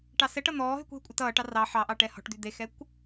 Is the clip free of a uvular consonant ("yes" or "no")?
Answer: yes